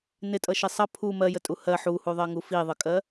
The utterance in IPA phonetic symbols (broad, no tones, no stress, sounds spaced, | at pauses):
n ɪ tʼ ʌ ʃ i sˤ ʌ pʰ u m ɜ j ə tʼ u h ɜ ħ u h u ðˤ ɜ ŋ u f i ðˤ ə kʼ ɜ